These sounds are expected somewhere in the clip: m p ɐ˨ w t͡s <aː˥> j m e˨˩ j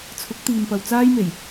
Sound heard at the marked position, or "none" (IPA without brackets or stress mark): aː˥